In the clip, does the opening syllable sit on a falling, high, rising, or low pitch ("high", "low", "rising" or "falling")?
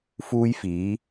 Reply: high